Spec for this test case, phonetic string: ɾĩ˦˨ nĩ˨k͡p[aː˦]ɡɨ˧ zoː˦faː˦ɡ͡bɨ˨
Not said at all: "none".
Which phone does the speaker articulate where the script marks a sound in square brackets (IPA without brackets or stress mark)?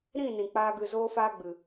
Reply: aː˦